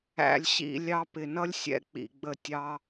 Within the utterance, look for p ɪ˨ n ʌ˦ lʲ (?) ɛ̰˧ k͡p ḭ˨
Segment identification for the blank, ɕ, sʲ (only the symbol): sʲ